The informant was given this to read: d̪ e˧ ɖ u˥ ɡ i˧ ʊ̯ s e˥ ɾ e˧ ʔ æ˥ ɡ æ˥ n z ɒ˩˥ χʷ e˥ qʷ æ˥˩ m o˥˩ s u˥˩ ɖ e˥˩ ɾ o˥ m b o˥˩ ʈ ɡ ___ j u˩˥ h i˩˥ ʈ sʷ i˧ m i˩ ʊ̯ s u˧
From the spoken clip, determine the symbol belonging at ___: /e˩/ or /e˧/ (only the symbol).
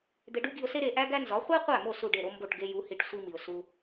e˧